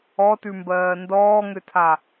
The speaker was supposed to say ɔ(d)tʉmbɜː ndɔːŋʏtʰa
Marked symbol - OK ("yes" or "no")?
no